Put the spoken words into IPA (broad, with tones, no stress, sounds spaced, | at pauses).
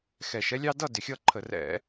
x ɛ˧˩˧ ʃ ɛ˦ lʲ ɑ˦ d ʌ˥˨ d ɪ˧˩ xʲ ʌ˥˨ ǃʰ ə˧˩˧ r ɛ̰˧˩˧